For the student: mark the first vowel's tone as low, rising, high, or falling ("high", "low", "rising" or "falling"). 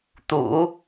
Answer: low